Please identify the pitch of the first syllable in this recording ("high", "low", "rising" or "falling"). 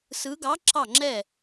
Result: rising